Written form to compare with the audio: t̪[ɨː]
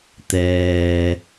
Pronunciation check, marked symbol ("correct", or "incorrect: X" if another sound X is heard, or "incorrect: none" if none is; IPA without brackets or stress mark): incorrect: ɛː